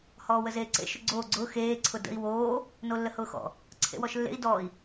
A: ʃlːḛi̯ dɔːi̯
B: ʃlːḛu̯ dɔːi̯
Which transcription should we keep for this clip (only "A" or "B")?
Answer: A